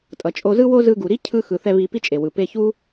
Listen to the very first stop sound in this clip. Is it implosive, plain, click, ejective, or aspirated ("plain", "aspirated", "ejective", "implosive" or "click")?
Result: ejective